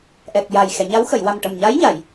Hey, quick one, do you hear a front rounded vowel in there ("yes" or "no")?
no